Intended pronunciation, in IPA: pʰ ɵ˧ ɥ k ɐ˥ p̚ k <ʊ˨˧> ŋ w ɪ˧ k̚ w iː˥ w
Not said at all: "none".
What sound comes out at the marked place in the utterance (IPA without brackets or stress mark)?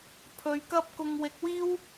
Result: ʊ˧